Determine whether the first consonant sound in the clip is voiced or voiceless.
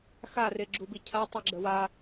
voiceless